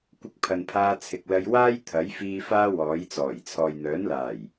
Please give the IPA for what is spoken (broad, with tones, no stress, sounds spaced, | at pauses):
kʷ ɪ˧ k̚ pʰ ɐ˨ n pʰ aː˧ t͡sʰ ɪ˨ k̚ l ɐ˧ j w aː˥ j t̪ʰ ɐ˨˥ j f iː˧ f aː˥ w ɔː˨˥ j t͡s ɔː˨˩ j t͡sʰ ɔː˨ j n̪ œː˨˥ n l aː˨˩ j